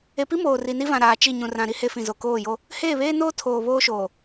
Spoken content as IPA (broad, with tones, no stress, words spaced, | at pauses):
e˨pi˦ moː˨ri˨ni˦vã˨ ɾaː˨t͡ʃi˦˨ ɲũ˨rã˨ɾi˦ he˦fĩ˨zo˨ koː˦˨jo˦ | heː˦˨βeː˦noː˦ tʰoː˨βoː˦ʃoː˨